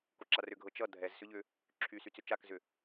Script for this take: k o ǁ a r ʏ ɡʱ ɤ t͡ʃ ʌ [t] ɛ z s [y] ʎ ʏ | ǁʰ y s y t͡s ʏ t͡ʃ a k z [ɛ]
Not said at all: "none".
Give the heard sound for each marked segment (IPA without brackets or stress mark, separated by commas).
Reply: dʱ, ʏ, ʏ